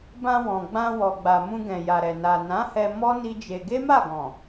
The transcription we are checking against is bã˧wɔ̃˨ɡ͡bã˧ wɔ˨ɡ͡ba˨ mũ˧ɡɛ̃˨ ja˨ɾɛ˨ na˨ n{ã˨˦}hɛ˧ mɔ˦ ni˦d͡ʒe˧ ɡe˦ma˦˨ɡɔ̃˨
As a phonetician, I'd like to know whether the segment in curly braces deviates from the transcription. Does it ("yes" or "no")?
no